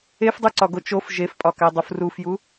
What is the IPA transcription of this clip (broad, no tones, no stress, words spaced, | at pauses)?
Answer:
efdˤuǀɒɡo t͡ʃof ʒefpʼɒkædˤuf rufju